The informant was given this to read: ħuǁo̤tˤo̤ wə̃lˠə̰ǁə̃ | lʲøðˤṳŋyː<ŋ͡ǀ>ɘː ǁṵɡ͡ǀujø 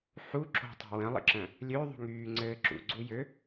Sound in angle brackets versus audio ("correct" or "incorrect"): correct